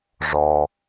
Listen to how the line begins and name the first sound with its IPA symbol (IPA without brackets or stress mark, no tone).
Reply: ʐ